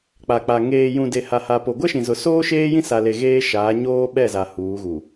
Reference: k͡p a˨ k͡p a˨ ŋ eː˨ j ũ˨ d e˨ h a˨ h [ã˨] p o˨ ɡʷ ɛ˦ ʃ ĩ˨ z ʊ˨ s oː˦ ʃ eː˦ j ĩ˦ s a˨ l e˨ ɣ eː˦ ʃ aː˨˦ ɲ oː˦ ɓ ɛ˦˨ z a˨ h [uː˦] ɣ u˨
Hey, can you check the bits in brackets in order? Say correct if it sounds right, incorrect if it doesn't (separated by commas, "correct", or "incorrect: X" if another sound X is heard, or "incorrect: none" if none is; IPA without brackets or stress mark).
incorrect: a˨, incorrect: uː˨˦